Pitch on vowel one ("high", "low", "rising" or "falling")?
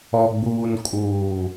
low